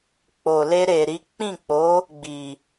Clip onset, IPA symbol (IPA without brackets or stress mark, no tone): k͡p